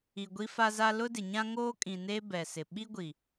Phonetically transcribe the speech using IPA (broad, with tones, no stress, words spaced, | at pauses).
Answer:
i˨ɡʷi˦fa˦za˦ lʊ˦dɪ˨ɲã˦ ŋoː˦kʼĩ˨ne˦ bɛ˨sɪ˨ ɓi˦ɡʷi˨